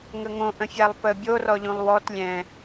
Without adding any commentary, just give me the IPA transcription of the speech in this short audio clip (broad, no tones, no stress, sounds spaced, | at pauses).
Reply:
ŋ ə ŋ õ ʔ ə̃ fʲ a lˠ p ə bʲ o r ɔ ʎ ũ lˠ w ɔ t lʲ ɛ̃